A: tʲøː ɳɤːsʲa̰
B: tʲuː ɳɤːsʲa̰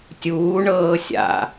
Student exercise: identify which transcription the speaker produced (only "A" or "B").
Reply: B